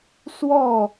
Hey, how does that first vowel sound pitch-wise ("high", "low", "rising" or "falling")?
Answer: falling